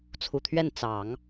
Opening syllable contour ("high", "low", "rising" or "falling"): low